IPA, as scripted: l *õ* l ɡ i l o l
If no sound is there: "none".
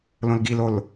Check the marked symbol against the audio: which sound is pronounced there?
õ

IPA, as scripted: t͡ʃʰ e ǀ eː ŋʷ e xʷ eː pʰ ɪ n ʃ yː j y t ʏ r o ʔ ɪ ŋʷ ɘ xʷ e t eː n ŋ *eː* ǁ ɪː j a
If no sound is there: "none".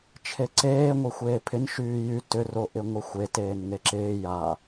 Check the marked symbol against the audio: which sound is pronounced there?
e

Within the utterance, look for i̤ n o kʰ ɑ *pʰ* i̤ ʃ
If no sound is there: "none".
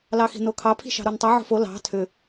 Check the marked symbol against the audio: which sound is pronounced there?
pʰ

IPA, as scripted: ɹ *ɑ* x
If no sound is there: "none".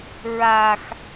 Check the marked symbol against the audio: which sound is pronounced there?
a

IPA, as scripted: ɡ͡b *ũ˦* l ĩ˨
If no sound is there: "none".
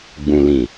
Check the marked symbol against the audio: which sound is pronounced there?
ũ˨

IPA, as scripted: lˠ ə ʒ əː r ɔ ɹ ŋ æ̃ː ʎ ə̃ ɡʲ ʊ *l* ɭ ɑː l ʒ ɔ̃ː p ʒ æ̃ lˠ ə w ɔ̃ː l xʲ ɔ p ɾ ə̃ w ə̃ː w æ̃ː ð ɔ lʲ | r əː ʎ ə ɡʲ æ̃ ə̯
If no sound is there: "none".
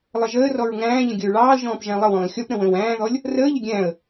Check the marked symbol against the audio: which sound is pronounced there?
ɹ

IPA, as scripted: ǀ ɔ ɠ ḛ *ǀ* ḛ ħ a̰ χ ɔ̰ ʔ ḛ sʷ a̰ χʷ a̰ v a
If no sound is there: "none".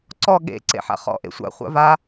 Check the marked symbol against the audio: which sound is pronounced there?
ǀ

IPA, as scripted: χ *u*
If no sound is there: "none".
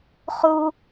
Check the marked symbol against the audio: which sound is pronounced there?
u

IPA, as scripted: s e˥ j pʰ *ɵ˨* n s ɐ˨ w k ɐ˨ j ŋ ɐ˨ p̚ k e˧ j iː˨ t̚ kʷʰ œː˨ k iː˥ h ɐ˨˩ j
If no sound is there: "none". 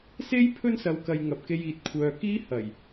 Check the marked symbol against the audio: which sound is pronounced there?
ɵ˥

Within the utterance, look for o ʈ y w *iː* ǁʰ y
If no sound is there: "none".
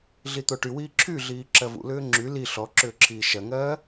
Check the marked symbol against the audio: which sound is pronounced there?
iː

